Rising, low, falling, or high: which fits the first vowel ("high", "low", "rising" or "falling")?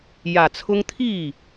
low